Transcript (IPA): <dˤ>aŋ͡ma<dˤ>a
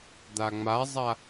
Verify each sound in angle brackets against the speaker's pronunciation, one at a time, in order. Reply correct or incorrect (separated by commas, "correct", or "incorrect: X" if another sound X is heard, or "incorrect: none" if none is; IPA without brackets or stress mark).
incorrect: d̪, incorrect: zˤ